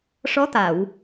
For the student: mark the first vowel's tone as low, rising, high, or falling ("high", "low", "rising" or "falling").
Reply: rising